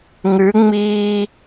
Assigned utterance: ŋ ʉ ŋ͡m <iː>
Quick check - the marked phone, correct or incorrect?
correct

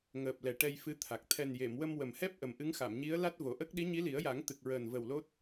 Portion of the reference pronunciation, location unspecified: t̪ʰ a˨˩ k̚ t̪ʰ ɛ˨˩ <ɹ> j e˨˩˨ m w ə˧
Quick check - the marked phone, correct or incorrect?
incorrect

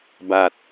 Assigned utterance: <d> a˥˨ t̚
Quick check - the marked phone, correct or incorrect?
incorrect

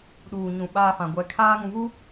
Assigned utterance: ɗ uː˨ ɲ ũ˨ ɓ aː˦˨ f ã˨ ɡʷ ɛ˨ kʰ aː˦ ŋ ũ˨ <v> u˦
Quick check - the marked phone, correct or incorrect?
correct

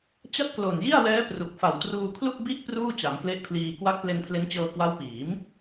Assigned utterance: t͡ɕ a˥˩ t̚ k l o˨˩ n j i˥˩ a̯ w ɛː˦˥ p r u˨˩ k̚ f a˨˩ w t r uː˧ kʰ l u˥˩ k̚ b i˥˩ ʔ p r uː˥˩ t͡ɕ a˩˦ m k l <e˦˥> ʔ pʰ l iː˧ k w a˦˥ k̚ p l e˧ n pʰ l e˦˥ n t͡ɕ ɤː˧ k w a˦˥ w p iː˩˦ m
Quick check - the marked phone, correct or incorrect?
correct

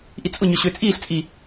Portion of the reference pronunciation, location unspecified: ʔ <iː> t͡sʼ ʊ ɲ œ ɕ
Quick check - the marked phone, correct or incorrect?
incorrect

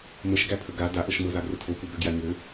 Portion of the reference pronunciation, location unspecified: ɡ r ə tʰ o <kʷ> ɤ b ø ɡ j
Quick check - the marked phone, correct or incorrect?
correct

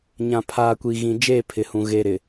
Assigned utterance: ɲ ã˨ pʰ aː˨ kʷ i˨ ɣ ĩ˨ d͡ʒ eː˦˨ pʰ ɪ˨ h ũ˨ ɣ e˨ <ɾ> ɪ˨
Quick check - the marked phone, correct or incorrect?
correct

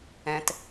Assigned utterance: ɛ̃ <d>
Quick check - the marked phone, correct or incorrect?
incorrect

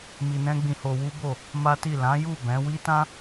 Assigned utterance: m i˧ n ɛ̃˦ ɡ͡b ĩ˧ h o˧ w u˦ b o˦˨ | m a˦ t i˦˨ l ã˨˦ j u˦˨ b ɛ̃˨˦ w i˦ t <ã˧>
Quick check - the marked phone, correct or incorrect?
incorrect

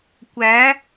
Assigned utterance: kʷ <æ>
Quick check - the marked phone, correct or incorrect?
correct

